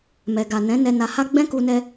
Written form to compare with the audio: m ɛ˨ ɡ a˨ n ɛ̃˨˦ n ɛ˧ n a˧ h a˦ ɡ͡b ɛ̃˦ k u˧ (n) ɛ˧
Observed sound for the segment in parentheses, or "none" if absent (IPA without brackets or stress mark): n